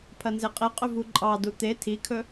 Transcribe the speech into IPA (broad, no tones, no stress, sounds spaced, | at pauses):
pʰ ɐ n z e qʼ e qʼ ɵ v u ǃʼ ɑ d u t̪ e tʰ i kʰ ɵ